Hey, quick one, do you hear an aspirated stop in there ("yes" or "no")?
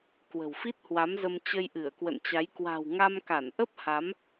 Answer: no